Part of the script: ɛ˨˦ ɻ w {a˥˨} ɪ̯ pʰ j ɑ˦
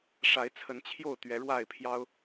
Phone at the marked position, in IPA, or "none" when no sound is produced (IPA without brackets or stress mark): a˥˨